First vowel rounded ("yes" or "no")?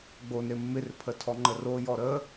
yes